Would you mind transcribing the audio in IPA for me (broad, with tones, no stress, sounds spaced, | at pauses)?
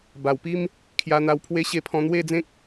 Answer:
b a˨˩ w p i˦ m | kʰ j a˧ n̪ a˧ w pʰ w e˦ ɕ e˥˧ pʰ ɔ̃˧ n̪ w e˥˧ d͡z ẽ˦ k̚